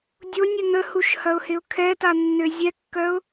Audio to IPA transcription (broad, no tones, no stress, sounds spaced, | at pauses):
dʲ o nʲ ə n ə h u ʃ h ɐ ʊ̯ h ɪ ʊ̯ kʰ ɛ t a nː ø zʲ ɛ kː œ ʊ̯